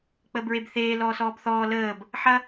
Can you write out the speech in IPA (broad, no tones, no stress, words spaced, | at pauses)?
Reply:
k͡pəːbɹebθeː lɔːsɔːbθɔː ləːb | ħɐ